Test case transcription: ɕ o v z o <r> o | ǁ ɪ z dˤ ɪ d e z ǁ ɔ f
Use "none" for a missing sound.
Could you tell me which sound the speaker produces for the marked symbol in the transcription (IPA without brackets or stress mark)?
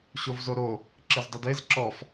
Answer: ɾ